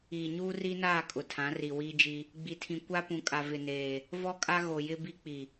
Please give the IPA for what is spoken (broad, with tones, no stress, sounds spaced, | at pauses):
iː˨ ɲ uː˦ r i˦ n aː˦˨ kʼ ʊ˨ tʰ ã˨˦ r i˨ w iː˦ d͡ʒ i˦ | ɡ͡b i˨ tʰ ĩ˨ kʷ a˦ p ũ˨ kʼ a˨ v ɪ˨ n eː˨ | v ɔ˦ kʼ a˦ ɣ o˨ j ɪ˦ b i˦ k͡p i˨